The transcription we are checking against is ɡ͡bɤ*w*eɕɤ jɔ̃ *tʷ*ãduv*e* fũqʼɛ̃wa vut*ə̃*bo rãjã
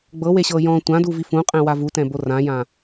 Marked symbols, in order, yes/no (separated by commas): yes, yes, no, no